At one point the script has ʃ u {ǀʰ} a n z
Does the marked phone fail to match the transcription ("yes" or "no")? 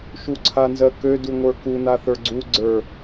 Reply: no